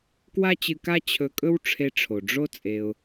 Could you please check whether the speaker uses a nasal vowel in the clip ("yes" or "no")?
no